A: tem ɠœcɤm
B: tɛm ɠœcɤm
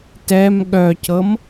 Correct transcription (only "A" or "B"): B